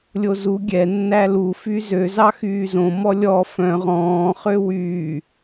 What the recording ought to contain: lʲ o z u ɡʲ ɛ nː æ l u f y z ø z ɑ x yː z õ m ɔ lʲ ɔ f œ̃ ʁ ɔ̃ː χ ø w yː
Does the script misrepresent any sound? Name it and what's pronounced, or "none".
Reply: none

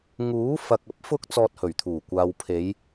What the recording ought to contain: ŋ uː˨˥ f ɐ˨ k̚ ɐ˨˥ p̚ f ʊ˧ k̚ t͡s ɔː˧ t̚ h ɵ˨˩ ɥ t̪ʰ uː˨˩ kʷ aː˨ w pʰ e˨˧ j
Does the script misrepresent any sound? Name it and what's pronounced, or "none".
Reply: none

